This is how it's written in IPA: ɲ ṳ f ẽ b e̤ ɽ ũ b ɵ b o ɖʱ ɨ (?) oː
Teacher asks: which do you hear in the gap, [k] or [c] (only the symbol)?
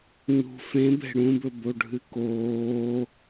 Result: k